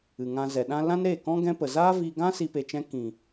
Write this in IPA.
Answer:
ɨ˨ŋã˧zɛ˨ɗã˦ lã˦nɾe˦˨kɔ̃˦ ɡɛ̃˦pə˨ zaː˦vi˧ɡã˦ si˦pe˧t͡ʃɛ̃˦ kĩ˨

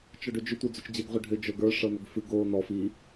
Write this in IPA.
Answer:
t͡ʃɔɖʏd͡ʒʏ tʷə˞d͡zot͡ʃd͡ʑeɡ ʁʷɨɖʱʏ d͡ʒə˞ɡə˞ ʂɤnʏɡfɨɡ o nɔf i

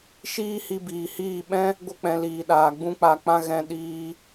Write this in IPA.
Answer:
ʃiː˦hi˧biː˨hiː˦˨ ɓɛ̃˦ | ɡʷə˧k͡pɛ̃˨ liː˨ɗaː˨ɡ͡bũ˦k͡pa˧ k͡pã˧ ɣɛ̃˧ɗiː˧

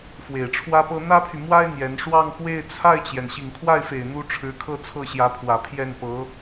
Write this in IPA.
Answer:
fwe˨˩ɪ̯ʈ͡ʂʰwä˥pɤ˥ n̪ä˥pʰy˨mwa˥ɪ̯ n̪jɛ˧˥n ʂwɑ˥˧ŋkwe˥˧ɪ̯ t͡sʰa˥˩ɪ̯t͡ɕjɛ˩n ɕi˨˩ŋkʰwa˥˩ɪ̯fe˨˩ɪ̯ n̪u˥ ʈ͡ʂʰɻ̩˧˥kʰɤ˥˧ t͡sʰɤ˥˩ɕjä˧˥pʰwä˨˩ pʰjɛ˥˩npɤ˧˥

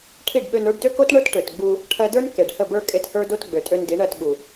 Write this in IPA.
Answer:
ʈʰi˦˨ɖɓø˧n ə˞˧ɖdø˦ko˦t ɳə˞˦tʈø˨t ɡ͡bu˧ | ʈʰɜ˧də˞˦n ke˨ɖhə˦˨bə˞˦ kʼe˧thə˞˦do˦t ɡ͡bø˨tʼø˧n di˨˦ɳɜ˦˨tɓu˨

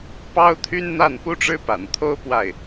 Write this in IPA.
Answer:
pɑ˥ʊ̯t̪ʰy˥nn̪a˥˩n pu˥ʈ͡ʂɻ̩˥pa̰˨˩nt̪ʰo˥ʊ̯ pwa˥˩ɪ̯

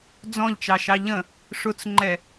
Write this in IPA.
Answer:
d͡zɔ̃ʎt͡ʃɑʃɑ ʎə̃ | ʂʊt͡sŋ͡ǃɛ

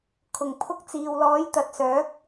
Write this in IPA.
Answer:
kʰʊ˨˩ŋpʰʊ˧k̚t͡siː˨wlɔː˨˥j t̪ɐ˨t̚sœː˨˥k̚

